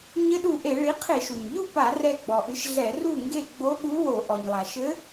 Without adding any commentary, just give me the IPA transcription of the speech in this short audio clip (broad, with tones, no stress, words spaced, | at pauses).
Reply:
ɲɘ˧˥ɗu˧˩ʔe˧˩˧ ɭi˩˥qʰe˧˩˧ʃu˩ɲʎu˥˩ pa˧˩˧rɛ˧˩ ɡ͡bɔ˩ʔɨ˩˥ʃ ɮɛ˧˩˧ru˥˩ŋɡe˥˩ ɡ͡bo˧˥ɠu˧˥ wo˧˩˧ ʔɔ˩ɲlˠa˩ʃɘ˧˥